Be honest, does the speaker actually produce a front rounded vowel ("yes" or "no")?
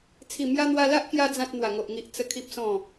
no